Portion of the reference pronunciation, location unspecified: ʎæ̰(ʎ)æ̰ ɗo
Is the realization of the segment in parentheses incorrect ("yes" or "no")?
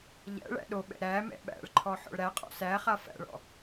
yes